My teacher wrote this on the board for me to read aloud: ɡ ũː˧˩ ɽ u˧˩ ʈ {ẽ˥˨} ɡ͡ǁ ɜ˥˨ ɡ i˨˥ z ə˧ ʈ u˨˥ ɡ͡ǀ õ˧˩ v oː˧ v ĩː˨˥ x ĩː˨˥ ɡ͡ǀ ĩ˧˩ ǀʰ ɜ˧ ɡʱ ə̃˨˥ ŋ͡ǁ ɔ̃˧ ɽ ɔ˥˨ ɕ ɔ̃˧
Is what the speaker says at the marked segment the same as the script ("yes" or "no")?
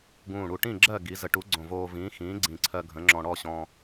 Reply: no